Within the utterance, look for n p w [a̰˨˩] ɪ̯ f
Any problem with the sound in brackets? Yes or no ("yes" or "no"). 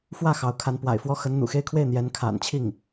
no